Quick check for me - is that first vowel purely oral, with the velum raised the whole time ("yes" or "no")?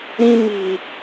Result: no